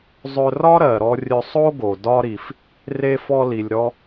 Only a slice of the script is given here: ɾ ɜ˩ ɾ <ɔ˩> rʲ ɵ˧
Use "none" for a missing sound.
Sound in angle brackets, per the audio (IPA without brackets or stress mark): ɔ˧